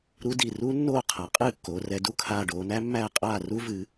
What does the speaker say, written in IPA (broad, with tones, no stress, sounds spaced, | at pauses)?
ɾ u˦˥ d i˧˩ r u˦˥ nː oː˥˩ qʰ a˩˧ qʼ ɨː˥˩ kː oː˩˧ r ɛ˩˧ d u˥˩ kʰ aː˧˩ ɖ oː˩˧ n æ˦˥ mː æː˥˩ qʼ aː˥˩ r u˦˥ v ɨː˩˧